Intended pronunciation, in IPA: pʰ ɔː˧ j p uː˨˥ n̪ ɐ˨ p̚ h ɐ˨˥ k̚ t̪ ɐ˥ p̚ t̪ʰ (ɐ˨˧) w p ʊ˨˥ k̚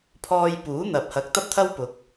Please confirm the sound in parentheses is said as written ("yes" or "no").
no